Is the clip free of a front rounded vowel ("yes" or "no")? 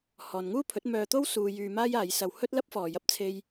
no